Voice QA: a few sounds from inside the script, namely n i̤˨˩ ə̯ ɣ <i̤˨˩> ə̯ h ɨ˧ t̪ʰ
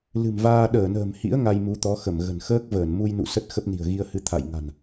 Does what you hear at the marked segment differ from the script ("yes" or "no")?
yes